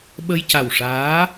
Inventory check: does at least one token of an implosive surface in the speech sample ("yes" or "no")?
yes